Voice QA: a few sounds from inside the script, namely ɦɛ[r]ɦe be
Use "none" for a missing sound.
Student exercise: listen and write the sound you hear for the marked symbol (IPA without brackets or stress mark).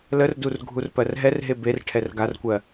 r